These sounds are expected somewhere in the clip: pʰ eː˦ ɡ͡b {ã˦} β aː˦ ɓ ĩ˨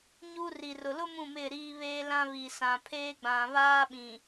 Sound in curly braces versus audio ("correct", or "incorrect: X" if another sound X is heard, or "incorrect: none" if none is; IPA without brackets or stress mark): incorrect: ã˨